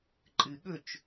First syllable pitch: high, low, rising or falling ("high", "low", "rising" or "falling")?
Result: low